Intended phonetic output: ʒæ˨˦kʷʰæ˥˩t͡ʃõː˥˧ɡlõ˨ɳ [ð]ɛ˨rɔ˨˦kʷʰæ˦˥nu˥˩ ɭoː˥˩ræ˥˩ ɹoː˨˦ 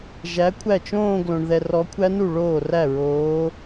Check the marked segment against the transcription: correct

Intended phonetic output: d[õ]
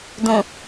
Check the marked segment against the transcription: correct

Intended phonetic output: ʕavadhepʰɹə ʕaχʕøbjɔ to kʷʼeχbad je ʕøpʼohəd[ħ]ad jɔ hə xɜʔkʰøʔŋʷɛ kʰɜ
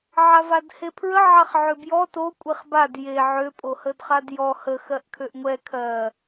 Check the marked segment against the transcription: incorrect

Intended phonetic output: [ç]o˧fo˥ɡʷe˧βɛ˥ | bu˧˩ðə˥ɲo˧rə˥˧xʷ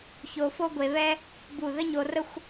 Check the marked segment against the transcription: correct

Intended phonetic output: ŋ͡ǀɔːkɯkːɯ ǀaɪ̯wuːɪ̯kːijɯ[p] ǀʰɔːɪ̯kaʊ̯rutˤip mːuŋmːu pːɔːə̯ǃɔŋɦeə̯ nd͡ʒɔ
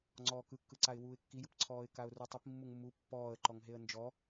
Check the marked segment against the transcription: correct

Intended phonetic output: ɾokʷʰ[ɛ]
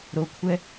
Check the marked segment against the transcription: correct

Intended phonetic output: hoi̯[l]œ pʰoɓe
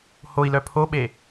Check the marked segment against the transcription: correct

